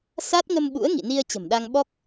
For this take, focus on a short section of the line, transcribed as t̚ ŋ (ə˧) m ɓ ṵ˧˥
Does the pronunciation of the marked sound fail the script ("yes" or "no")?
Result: no